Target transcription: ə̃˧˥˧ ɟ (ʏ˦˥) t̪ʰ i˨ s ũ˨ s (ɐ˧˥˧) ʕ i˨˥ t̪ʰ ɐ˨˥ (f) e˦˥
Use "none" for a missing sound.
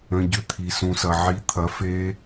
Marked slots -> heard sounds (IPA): ʏ˦˥, ɐ˨, f

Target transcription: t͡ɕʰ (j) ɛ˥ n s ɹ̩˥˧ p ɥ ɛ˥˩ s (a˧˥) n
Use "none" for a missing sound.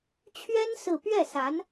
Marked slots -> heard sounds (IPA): ɥ, a˧˥

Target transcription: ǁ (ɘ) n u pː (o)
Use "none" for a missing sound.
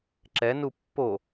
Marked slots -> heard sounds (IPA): ɛ, o

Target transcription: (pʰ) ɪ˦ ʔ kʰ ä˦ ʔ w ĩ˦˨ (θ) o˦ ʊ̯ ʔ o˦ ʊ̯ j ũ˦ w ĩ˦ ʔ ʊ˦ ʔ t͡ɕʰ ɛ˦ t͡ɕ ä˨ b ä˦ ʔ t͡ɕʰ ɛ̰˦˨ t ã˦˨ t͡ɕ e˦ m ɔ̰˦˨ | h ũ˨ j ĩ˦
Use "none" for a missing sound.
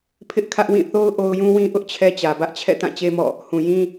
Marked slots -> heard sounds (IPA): pʰ, θ

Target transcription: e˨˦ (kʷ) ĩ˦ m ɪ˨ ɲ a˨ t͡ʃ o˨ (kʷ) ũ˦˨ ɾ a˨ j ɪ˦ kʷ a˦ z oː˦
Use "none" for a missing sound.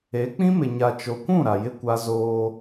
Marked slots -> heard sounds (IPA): k͡p, kʷ

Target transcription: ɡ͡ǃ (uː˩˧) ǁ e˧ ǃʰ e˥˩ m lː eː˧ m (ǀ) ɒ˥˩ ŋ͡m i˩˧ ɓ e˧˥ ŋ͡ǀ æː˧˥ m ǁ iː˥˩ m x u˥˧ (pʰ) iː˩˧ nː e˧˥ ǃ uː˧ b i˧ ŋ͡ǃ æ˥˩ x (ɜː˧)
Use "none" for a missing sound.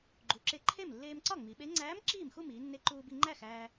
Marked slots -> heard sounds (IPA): u˩˧, ǀ, m, æː˧

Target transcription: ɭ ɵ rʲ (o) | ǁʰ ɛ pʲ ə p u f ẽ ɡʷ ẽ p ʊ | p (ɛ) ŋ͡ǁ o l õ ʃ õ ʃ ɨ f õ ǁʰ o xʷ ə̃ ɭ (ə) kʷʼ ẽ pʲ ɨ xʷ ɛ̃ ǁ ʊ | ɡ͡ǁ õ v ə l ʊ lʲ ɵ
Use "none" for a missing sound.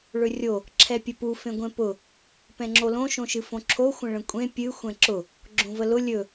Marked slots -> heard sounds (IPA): o, ɛ̃, ə̃

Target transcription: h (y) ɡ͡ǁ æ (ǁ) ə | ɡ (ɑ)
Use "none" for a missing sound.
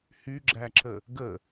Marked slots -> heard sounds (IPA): y, ǁ, ə

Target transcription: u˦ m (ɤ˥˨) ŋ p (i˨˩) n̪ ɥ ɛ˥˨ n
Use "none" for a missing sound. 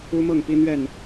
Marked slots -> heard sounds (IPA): ɤ˥˨, i˦

